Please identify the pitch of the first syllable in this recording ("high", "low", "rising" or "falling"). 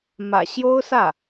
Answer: low